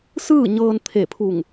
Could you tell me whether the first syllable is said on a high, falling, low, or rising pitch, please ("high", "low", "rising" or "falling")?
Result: falling